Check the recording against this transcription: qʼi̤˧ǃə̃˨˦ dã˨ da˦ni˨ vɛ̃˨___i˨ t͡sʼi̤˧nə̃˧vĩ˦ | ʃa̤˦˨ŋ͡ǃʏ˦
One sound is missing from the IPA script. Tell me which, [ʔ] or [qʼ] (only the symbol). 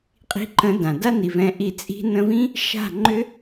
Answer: ʔ